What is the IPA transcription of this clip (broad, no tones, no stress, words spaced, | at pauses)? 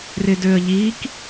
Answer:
rɪdøə̯ʎik